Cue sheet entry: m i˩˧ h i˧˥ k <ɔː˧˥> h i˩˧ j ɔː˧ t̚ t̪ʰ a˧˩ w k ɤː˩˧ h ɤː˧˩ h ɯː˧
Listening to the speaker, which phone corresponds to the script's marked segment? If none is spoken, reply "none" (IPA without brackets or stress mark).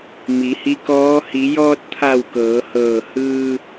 ɔː˧˥